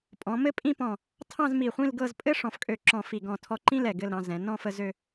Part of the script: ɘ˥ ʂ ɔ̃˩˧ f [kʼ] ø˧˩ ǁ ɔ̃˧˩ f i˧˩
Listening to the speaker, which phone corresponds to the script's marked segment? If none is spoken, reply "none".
kʼ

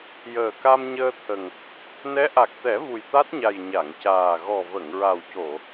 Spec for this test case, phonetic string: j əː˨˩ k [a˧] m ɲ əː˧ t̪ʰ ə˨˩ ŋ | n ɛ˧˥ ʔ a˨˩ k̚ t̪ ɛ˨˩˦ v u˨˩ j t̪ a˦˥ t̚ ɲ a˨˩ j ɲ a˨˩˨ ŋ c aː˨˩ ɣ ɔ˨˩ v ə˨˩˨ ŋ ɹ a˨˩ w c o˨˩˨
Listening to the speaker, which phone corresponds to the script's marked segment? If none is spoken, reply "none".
a˧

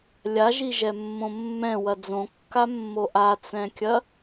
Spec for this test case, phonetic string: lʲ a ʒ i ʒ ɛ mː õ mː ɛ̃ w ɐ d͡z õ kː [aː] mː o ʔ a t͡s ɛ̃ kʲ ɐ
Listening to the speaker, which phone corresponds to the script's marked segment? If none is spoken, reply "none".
a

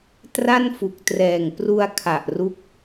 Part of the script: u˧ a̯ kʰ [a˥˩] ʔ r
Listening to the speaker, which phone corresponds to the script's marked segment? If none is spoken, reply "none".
a˨˩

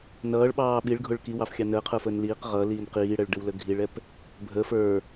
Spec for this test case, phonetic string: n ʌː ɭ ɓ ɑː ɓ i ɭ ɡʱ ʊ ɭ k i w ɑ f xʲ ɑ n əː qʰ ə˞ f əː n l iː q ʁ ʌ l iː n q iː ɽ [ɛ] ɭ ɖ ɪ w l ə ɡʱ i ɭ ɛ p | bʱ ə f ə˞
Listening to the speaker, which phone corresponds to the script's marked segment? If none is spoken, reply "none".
ɛ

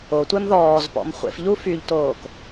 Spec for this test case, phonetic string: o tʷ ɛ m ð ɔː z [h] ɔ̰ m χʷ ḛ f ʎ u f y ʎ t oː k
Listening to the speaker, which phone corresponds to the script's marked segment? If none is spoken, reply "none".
p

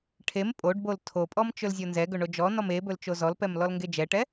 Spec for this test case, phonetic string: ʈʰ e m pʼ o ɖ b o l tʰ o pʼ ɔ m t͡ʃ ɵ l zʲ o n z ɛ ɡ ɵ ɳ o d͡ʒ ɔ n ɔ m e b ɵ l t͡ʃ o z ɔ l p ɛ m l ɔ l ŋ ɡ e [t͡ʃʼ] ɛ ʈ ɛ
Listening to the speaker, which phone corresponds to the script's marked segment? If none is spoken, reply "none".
d͡ʒ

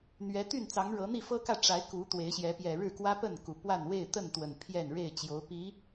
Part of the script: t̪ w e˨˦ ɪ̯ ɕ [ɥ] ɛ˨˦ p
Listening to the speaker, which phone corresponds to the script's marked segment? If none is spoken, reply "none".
j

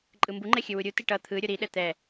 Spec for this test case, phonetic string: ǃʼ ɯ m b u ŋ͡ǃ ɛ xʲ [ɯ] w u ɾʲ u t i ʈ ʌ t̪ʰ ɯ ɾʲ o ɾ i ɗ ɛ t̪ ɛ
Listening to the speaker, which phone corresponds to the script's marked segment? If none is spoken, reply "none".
ɯ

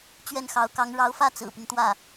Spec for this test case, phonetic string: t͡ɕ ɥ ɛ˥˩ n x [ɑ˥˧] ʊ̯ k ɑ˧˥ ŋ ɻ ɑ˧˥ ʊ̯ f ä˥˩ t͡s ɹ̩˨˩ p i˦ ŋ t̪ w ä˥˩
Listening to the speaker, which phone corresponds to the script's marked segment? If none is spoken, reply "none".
ɑ˧˥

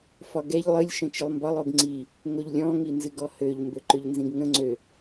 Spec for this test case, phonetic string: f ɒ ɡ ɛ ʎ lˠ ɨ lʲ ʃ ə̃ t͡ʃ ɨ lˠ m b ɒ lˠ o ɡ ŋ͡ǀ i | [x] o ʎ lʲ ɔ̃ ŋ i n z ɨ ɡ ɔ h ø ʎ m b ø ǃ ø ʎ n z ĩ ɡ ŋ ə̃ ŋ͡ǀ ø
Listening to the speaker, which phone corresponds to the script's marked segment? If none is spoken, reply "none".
ŋ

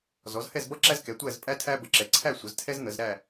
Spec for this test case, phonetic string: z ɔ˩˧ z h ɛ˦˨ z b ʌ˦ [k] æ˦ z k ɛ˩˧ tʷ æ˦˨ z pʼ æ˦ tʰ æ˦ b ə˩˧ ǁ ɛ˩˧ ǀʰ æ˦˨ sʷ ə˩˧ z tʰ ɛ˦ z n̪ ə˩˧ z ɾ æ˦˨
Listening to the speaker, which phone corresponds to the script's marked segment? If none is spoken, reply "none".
ǁ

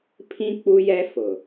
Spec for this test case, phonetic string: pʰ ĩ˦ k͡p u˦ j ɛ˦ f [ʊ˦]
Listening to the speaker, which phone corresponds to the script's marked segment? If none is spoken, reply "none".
ʊ˨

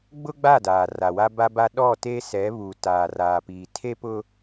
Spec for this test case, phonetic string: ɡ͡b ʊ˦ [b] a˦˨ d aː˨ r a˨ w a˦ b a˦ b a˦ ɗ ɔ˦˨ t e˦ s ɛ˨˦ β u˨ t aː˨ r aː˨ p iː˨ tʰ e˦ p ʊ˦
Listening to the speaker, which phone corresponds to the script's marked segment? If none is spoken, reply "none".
ɡ͡b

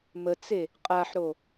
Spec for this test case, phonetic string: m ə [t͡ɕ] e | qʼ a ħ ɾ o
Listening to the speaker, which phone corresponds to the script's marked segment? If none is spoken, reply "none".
t͡s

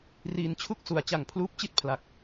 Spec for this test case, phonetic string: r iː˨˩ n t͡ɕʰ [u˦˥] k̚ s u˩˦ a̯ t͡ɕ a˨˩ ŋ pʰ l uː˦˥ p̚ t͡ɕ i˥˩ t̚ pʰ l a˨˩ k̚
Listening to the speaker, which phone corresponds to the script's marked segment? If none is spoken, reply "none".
u˦˥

